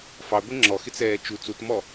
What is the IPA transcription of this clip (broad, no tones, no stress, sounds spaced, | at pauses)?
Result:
f ɑ ɡʷ ɛ ŋ͡ǁ ɔ x ɪ t͡s ɛː t͡ʃ u t͡s u t m ɔ